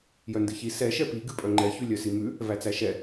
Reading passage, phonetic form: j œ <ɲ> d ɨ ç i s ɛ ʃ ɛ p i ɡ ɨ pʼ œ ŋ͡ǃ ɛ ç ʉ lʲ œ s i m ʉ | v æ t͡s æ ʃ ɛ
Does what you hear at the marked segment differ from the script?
yes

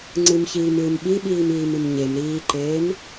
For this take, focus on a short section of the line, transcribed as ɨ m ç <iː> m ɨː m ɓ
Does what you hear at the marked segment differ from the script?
no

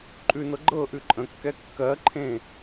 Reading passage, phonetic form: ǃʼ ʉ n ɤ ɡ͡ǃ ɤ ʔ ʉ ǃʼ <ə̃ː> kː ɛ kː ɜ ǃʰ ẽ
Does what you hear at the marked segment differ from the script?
yes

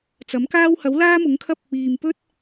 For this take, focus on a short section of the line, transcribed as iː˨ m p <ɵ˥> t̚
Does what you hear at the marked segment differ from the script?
no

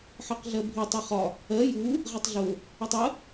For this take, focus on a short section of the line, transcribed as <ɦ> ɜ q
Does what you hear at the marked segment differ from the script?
yes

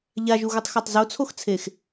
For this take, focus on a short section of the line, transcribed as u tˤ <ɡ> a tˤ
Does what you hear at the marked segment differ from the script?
yes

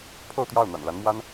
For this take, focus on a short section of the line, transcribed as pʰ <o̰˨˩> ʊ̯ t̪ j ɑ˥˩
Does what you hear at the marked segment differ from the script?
yes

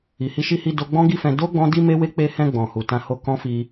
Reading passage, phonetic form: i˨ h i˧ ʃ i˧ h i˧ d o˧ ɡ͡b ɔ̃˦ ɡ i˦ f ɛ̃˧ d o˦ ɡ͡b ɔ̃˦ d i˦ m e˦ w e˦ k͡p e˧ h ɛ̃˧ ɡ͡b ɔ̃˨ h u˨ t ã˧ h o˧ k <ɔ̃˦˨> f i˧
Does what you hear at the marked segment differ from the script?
yes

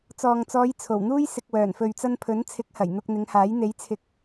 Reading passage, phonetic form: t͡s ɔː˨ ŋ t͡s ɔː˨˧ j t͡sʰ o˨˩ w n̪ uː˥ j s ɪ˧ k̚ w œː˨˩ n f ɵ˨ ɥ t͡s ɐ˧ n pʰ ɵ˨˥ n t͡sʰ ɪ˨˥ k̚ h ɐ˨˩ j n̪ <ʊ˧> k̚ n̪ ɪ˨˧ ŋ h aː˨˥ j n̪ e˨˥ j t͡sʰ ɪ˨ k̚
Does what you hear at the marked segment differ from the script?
no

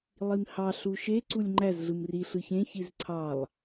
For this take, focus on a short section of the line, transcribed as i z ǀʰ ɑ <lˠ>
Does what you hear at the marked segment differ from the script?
no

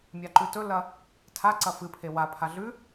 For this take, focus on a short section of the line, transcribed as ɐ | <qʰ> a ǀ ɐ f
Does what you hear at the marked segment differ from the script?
yes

